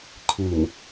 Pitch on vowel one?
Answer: low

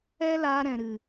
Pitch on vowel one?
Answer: high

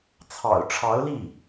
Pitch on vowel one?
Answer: low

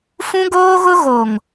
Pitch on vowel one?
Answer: high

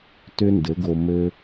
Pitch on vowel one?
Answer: high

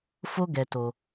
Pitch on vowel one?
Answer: high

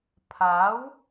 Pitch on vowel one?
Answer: rising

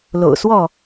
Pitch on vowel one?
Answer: low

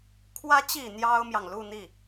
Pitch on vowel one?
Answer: rising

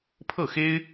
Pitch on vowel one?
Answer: falling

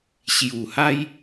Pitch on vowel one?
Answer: low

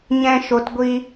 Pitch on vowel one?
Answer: high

